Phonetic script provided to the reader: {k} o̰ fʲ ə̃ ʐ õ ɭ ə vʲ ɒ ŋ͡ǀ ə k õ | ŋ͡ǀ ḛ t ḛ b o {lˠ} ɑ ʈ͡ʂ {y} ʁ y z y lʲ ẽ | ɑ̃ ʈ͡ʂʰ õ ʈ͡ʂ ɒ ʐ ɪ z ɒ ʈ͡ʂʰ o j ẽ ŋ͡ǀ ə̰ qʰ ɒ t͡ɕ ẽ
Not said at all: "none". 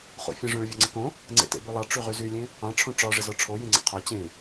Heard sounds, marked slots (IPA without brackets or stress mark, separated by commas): χ, lˠ, y